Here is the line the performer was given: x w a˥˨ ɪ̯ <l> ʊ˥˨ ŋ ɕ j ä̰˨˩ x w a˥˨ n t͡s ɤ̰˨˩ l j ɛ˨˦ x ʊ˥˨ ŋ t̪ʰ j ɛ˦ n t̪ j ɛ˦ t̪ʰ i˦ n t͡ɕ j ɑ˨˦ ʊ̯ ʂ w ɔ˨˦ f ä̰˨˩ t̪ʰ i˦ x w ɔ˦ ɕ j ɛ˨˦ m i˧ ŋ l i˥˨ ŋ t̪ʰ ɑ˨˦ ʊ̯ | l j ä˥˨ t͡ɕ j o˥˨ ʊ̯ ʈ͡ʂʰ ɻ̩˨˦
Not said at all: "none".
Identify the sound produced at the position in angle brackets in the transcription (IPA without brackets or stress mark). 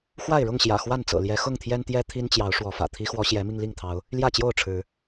ɻ